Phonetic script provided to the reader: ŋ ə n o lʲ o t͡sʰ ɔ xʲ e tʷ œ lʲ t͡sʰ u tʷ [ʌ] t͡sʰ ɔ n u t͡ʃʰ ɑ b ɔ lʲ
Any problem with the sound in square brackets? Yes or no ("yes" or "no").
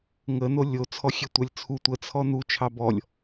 yes